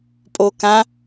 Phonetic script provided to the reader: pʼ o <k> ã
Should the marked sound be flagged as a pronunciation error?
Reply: no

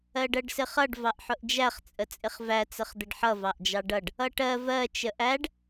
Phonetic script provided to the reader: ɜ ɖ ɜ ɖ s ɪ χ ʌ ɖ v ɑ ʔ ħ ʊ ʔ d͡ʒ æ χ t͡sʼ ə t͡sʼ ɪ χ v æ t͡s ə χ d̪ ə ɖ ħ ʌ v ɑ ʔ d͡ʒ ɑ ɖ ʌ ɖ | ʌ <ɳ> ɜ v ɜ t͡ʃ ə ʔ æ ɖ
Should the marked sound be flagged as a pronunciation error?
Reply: yes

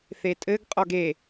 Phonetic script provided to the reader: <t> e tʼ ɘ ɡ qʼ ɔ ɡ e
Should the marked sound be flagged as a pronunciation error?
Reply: yes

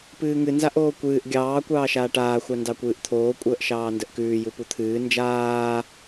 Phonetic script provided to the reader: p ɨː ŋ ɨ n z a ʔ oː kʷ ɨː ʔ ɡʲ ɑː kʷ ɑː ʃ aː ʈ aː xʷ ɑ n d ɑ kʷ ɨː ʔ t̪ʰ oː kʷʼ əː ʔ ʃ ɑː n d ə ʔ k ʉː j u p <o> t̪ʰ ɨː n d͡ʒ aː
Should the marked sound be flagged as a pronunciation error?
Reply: yes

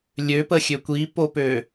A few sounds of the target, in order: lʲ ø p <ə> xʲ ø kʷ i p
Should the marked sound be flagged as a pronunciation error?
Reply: no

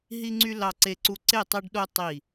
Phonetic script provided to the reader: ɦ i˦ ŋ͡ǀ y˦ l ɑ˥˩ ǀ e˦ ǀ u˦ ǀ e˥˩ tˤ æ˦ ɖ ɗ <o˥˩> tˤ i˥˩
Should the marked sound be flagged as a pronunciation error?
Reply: yes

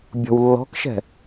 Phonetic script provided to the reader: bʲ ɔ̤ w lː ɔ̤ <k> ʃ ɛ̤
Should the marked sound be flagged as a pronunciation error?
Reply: no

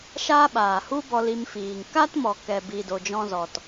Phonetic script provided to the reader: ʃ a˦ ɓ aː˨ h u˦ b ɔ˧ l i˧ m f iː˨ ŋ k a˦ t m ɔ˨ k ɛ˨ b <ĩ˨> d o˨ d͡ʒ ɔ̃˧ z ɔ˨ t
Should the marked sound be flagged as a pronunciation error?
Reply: yes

